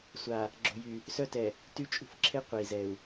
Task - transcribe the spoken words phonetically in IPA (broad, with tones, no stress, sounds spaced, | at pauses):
sʷ a˨ | ɡ͡ǁ o̤˨ j y˨ | s œ˦ t ɛ˨ | t y˦ t͡ʃʼ ṳ˦ f ǁʰ e˦ qʷ e˨ i̯ z ɛ˨ u̯